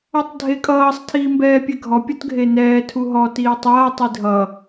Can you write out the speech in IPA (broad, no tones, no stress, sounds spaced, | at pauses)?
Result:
ɔ tˤ dʱ e kʼ ʌː sˤ tʰ iː m b ɛː pʲ ɛ ɡʱ ɔ pʲ ɔ t ɡʱ e n ɛː tʰ u ɦ ɔ t iː tˤ ʌː tˤ i dʱ ʌ